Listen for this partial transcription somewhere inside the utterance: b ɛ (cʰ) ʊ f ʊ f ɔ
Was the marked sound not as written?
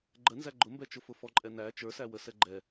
yes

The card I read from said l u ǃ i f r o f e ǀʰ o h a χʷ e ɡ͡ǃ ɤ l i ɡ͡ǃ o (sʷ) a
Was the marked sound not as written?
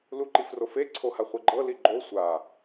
no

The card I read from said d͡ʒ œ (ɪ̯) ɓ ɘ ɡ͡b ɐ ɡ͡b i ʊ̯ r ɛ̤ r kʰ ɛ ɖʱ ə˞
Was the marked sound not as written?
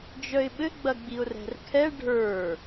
no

